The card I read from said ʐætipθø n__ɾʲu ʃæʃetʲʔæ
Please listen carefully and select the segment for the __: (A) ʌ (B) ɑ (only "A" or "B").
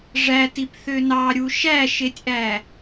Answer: B